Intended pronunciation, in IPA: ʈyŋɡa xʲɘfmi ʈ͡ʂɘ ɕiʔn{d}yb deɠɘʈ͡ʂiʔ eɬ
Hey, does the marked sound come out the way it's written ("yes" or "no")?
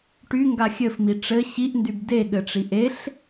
yes